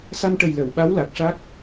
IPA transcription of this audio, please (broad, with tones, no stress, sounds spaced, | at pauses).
s a˧ m ʈ ə˨˩ j l ə˨˩˨ w ɓ a˧˥ w l a˨˩ k̚ ʂ a˦˥ k̚